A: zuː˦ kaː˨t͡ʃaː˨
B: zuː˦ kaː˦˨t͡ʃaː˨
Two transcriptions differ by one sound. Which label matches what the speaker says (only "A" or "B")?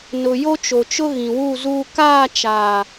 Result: B